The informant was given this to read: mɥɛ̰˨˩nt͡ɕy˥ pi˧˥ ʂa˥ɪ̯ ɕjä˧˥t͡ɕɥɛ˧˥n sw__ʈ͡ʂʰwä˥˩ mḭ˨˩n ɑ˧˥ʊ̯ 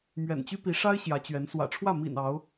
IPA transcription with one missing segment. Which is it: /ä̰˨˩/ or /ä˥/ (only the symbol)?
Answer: ä̰˨˩